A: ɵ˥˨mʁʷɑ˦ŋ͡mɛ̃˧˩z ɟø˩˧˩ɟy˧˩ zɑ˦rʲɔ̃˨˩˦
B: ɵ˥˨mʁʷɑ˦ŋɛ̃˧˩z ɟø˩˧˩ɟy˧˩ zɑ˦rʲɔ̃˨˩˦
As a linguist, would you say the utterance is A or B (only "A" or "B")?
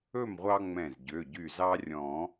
A